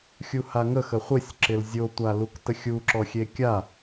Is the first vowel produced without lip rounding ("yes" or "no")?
no